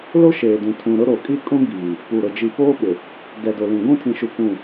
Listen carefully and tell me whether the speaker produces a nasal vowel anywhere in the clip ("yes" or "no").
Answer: yes